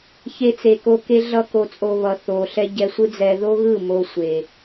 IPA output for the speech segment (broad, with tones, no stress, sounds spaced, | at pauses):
ç e˧ t͡s e˨ k o˧ k e˦ ɮ ʌ˦ k o˨ t͡sʼ o˨ β ʌ˨ θ o˨ ɬ ɛ˦ ɟ ɛ˧ sʷ ɯ˦ d͡z ɛ˧ ð o˦ ɣ ɯ˦˨ m o˧ sʷ e˨